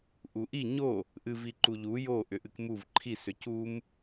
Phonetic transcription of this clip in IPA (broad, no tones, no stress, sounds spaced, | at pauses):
ʔ u ʔ i ɲ o | ʔ ɨ v i ǃ u ʎ u j o ʔ ʏ ʔ ɨ k m u v ǃʰ i s ʏ c u m